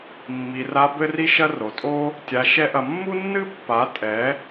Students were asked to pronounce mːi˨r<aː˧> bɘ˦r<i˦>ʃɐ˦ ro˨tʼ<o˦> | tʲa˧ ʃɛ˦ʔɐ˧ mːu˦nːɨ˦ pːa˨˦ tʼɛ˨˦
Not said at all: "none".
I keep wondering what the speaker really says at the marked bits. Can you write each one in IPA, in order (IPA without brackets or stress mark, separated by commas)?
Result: a˧, i˦, o˦